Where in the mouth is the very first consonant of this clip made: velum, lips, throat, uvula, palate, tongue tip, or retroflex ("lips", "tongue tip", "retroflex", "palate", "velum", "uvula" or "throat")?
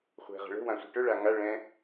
uvula